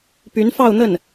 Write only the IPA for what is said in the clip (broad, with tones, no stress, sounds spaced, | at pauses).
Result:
p y˧˥ n f ɑ˥˧ ʊ̯ n̪ ə˥˩ n